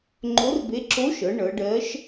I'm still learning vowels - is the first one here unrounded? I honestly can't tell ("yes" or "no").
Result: no